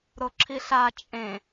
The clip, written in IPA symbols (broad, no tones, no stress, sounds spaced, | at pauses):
ɾ o ǁʰ i ɬ a t͡ʃʼ ẽ